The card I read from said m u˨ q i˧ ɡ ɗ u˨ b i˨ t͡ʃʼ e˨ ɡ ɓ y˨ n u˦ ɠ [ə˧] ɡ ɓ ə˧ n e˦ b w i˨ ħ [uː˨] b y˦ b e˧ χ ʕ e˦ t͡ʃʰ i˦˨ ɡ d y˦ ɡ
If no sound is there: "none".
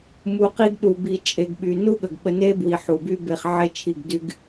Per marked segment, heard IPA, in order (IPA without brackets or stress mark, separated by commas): ə˨, u˨